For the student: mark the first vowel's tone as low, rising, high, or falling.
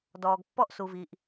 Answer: low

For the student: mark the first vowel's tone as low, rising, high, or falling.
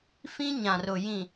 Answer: high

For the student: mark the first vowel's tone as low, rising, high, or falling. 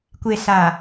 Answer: low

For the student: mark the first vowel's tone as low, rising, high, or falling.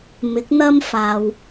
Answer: rising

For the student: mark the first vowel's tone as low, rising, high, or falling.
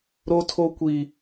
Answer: high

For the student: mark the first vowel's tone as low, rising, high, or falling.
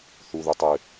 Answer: low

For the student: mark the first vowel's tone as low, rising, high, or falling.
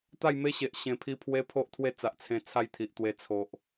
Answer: falling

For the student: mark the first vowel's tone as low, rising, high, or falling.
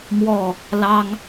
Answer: falling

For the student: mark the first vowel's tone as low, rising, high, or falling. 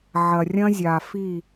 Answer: low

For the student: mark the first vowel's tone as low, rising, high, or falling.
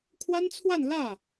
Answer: high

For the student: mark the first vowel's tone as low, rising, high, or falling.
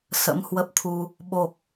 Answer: rising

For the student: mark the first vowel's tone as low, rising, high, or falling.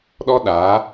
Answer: high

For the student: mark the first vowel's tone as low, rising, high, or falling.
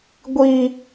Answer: high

